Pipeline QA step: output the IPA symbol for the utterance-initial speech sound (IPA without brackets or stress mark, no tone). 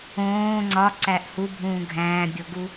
õː